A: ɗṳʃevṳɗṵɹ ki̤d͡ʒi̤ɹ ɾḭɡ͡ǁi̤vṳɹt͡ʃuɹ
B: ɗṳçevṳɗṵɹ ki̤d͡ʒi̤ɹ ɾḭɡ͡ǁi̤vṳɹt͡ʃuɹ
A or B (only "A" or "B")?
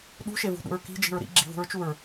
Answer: A